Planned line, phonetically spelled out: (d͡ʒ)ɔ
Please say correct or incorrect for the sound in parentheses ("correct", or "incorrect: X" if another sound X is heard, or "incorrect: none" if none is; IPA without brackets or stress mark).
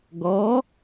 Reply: incorrect: ɡ